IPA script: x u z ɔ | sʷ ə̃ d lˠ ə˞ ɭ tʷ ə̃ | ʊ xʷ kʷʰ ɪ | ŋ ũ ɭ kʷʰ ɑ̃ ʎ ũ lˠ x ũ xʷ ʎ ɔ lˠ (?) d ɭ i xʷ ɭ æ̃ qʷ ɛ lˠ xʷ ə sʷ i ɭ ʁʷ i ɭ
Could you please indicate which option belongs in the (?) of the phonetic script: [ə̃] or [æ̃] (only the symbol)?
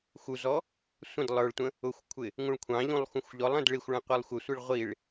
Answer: ə̃